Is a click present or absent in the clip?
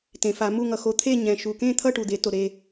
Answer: absent